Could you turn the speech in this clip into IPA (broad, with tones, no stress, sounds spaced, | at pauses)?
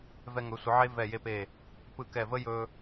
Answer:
v ɛ˧ ŋ ɵ˩˧ sʷ ɯ˩˧ ʕ e˥ v ɛ˧˩ j e˧ p e˧˩ | p ɯ˧˩ k ɛ˧˩ v ə˥ j ɵ˧